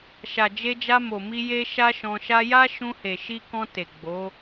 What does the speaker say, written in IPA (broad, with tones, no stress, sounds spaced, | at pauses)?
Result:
ʃ a˨ d͡ʒ e˧ d͡ʒ a˧ m o˨ m i˧ j e˦ ʃ a˦ ʃ ɔ̃˧ ʃ a˦ j a˦ ʃ ũ˧ h e˨ ʃ i˧ k ɔ̃˧ t e˨ ɡ͡b o˨˦